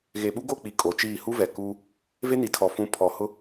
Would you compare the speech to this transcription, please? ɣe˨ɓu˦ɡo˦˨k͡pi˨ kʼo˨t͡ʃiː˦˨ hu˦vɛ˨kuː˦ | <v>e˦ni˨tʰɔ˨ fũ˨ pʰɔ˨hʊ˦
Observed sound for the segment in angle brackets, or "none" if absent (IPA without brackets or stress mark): v